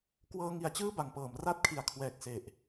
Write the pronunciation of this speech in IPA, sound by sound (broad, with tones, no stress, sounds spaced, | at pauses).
k w ɤː˧ ŋ i˨˩ a̯ t͡ɕ ɯː˥˩ b a˩˦ ŋ p ɤː˩˦ m r a˥˩ t̚ kʰ i˨˩ a̯ kʰ w ɛː˨˩ k̚ s e˨˩ ʔ